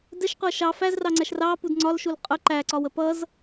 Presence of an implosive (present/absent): absent